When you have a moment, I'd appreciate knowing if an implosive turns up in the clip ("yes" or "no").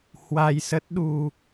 yes